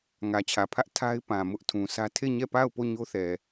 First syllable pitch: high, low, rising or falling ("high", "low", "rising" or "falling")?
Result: low